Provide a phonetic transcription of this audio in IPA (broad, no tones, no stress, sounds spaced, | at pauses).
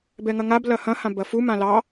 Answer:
b ɛ ŋ ɐ ŋ a b l ɐ h ɐ̃ h ã b ɐ f u m ã l ɑ